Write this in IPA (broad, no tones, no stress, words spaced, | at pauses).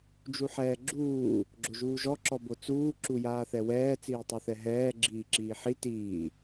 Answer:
d͡ʒuħɛːɡ͡ǁuː | ɡ͡ǁoʒuːʒɔ ǁɔbot͡suː ǁujaːθɛwɛː t͡siːtˤuθɛɦɛː ɡ͡ǁiːǁiːħi tiː